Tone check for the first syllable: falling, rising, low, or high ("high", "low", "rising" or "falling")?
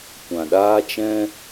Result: low